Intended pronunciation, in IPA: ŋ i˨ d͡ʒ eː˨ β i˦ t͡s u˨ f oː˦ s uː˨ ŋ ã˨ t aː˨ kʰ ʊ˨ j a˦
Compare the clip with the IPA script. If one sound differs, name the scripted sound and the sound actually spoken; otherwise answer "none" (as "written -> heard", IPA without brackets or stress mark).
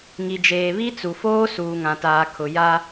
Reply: none